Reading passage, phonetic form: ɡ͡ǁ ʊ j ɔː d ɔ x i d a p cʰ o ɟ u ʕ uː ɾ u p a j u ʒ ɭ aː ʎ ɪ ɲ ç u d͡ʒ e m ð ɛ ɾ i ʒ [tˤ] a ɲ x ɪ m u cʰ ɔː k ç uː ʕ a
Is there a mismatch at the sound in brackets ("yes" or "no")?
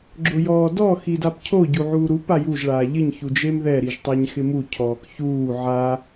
no